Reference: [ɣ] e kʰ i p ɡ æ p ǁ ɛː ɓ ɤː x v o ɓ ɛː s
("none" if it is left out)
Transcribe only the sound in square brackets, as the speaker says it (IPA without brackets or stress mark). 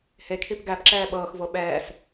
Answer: h